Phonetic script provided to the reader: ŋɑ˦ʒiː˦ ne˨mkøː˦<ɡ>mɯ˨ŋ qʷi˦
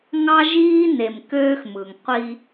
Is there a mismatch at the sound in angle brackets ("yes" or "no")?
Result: yes